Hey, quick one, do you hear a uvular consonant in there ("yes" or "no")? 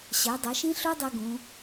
no